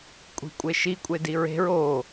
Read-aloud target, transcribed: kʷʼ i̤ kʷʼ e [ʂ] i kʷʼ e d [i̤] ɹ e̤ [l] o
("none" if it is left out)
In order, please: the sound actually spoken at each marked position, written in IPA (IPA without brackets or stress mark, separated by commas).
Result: ʃ, i, ɹ